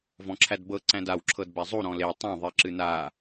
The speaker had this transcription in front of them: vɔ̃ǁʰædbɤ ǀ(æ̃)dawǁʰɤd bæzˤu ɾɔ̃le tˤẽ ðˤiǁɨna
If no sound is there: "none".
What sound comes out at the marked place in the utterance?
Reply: æ̃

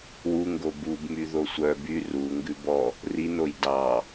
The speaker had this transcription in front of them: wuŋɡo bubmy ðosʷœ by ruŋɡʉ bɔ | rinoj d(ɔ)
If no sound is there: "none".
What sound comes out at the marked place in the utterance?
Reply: ɑ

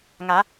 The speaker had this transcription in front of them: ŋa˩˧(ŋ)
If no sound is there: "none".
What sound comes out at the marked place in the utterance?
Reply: none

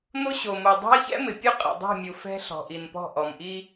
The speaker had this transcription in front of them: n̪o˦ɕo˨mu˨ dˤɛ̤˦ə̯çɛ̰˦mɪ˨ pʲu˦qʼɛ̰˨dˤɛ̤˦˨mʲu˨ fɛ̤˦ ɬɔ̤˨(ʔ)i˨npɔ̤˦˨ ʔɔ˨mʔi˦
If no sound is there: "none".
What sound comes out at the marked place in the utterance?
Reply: ʔ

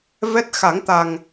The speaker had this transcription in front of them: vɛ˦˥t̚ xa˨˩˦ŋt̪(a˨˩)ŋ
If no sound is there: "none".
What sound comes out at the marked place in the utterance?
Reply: a˨˩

